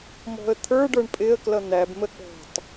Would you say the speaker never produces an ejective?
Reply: no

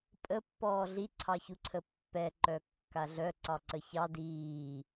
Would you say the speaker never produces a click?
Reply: no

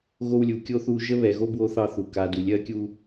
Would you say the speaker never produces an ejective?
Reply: yes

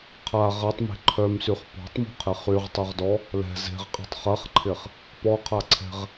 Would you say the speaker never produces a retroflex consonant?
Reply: yes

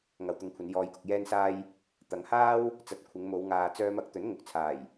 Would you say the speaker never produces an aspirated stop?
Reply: no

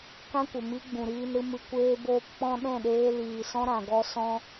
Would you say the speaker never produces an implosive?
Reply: no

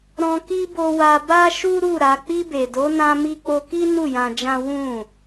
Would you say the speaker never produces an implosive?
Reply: yes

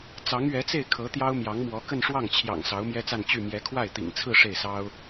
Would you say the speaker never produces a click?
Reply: yes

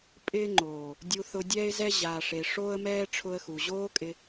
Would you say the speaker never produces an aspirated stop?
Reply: no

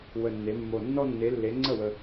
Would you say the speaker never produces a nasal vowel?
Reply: yes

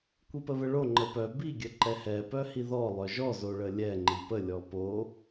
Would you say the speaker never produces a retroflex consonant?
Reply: no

